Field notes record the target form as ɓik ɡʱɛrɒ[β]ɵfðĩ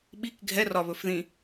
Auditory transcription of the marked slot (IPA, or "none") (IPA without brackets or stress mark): β